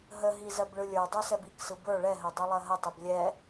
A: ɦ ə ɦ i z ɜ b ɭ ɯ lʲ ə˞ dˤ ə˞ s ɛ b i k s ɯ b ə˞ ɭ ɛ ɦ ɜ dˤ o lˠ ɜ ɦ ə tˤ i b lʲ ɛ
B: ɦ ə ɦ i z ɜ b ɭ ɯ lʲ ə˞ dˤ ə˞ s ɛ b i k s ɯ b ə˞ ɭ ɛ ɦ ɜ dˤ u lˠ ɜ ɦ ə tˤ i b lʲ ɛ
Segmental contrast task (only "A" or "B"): B